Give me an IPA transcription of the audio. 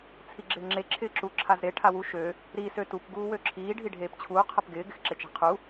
t͡sʰiɡ͡ǁɪːŋ͡ǁe ǁʰɪːǁu ǁʰazɾe ʈʰawu ʃø | ɾi søtup ɡuːwøǁʰiː ɖʱiɖʱeːpt͡ɕʰuː qʰɐpɡɪː ɡɪxǁet͡ʃe̤qʰu

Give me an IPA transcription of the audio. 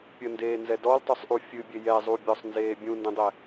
pʲəndeːnzɛ dɔltˤusˤʔu fʲɨbʲe jɛzˤubʲɔsˤnzeː bʲũndẽdˤɛ

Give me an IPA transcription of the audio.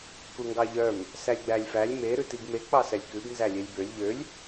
kuŋɡɑʎœm | sælʲɡ͡bælʲfælʲ me ɾʉtiɡme k͡pɑsɛlʲkʉb nzælʲelʲbølʲ ʎølʲ

